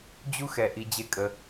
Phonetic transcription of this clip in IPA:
d͡ʑ u˦ x ɛ˨ ʔ i˧ d͡ʑ e˦ kʼ ə˧

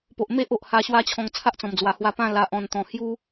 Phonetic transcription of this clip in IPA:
p o˨ ʔ m e˦ ʔ o˨ ʔ h a˧ ɕ w a˦ t͡ɕʰ ɔ̃˧ ŋ t͡sʰ a˦ ʔ t͡s ɔ̃˨˩ m d͡z w a˨˩ h w a˧ p ã˥˧ l a˨ ʔ ɔ̃˨˩ n t̪ ɔ̃˨˩ h j u˦

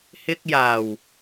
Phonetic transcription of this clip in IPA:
h ɪ˧ k̚ j aː˨˩ w

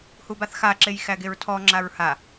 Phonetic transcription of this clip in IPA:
h u b a θ x a ǁ e j x æ ɡ e ɹ tʰ ɔ ŋ͡ǁ a ɹ h a

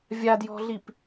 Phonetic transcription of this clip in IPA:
vʲ a d j ɔ̤ ɮ i p

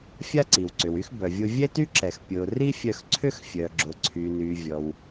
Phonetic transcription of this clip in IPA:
fʲ a˥ ǀ i˩ w ǀ ʏ˩ w y˥ x b œ˩ vʲ ʊ˧ vʲ ɛ˥ t y˥ ǁ ɛ˩ x pʲ ʊ˩ r i˥ fʲ œ˧ x ǀʰ ʏ˥ x fʲ œ˩ ɡ͡ǁ ʊ˩ ǀʰ y˩ n y˩ vʲ ɔ˩ w

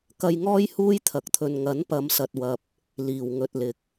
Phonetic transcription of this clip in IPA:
k ɐ˧ j ŋ ɔː˥ j h uː˥ j t̪ʰ ɐ˨˥ k̚ t̪ʰ ɵ˨ n ŋ ɐ˨˥ n p ɐ˨˧ m s ɐ˨ t̚ w ɐ˨ p̚ | l iː˨˩ w ŋ ɵ˧ t̚ l ɪ˧ k̚

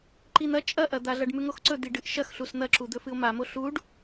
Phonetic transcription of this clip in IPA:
ǃ i n̪ ɐ t͡ʃʼ ɐ ʔ ɐ d̪ a ɮ ɐ ɖ m ʉ ŋ o x ǀ ɵ d̪ i ɖ ɨ ʔ ʃ ɐ x ɬ u s n̪ ɐ ǁ u d̪ ɵ f ɨ o̯ m a m o ɬ u ɖ

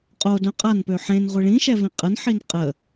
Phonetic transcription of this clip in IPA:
qʼ o d œ̃ qʼ a n p ø ħ ẽ n ʁʷ i ɭ ĩ ʃ ɛ v ĩ qʼ ə n ħ i n qʼ ə

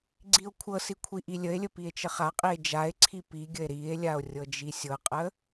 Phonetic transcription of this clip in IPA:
ɡ͡ǀ i o̯ kʷʰ ɤ s i kʷʰ i ʔ i lʲ ə e̯ lʲ ə p i e̯ t͡ʃ ə χ a qʼ i e̯ d͡ʒ a e̯ ǀʰ i p i ɡʲ ə e̯ ɾ i e̯ lʲ a o̯ rʲ ɤ d͡ʒ i sʲ ɤ qʼ ə

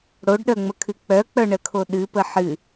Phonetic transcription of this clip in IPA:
ɽ o ɖ ɗ œ ŋ͡m ə kʰ ɨ k͡p œ k͡p œ ɳ ə kʰ o ɗ ɨ p ə ħ ɨ

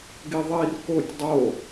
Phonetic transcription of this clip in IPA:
ɡ i ðˤ i r k o tʲ dˤ o

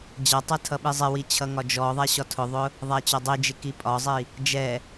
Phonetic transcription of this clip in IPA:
d͡ʑ ʌ tˤ ɛ tʰ ʌ ɓ i zˤ ɪ w i t͡ɕʰ ʌ ŋ ɒ d͡ʒ ɔ ðˤ æ ɕ ɒ tʰ ʊ ðˤ ʊ | ðˤ æ t͡ɕ ɒ dˤ i d͡ʒ ɪ k i pʼ ɒ zˤ i | d͡ʒ ɛ

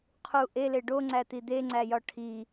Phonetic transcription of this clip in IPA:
qʰ u ʔ e l e ɖ o ŋ͡ǀ æ t̪ i d̪ e ŋ͡ǀ æ j ɒ ʈʰ i

